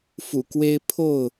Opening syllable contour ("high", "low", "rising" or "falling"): low